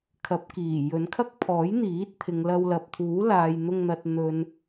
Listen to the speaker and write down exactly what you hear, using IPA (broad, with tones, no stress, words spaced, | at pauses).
kʰɐ˨˥p̚kiː˨˩ jɵ˨˧nkʰɐ˥k̚pʰɔː˨˥j n̪iː˨˥t̚t̪ʰɪ˨ŋlɐ˧w lɐ˨p̚t̪ʰuː˨˥laː˨jn̪ʊ˧ŋ n̪ɐ˨t̚n̪ɵ˨n